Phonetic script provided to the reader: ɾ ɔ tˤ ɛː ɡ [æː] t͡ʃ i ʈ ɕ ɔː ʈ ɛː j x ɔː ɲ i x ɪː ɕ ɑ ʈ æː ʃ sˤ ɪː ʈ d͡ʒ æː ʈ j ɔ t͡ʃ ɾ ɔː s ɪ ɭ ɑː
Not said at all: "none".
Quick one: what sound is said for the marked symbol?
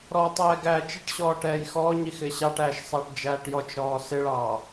æː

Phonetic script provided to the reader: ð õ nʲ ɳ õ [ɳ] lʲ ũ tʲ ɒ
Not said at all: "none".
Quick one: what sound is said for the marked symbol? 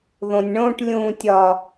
ʈ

